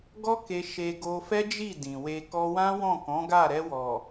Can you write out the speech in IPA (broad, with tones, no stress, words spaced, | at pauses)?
ɡɔ˦ke˧ ʃe˧ɡo˧fɛ˦d͡ʒi˦˨ dĩ˨we˧ kɔ˧wã˦wɔ̃˦˨ kɔ̃˨˦ɡa˦˨ ɾɛ˧wɔ˨